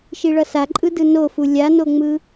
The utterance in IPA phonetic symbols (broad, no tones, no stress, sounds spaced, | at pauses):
ʃ i ɭ ʌ s a ǃʼ ɯ d ɯ n o f u lʲ a n o ŋ͡m ɯ